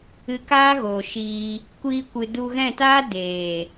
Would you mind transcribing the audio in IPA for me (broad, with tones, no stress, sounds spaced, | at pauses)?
ɨ˧ k aː˦ ɣ o˨ ʃ iː˧ | kʷ iː˧ kʷ ɨ˨ d u˧ ɣ ɛ̃˦˨ t aː˦ d eː˨